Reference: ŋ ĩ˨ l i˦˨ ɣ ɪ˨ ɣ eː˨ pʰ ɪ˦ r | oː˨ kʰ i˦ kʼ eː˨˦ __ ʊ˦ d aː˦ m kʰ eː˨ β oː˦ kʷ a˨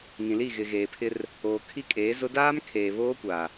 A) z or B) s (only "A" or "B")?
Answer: A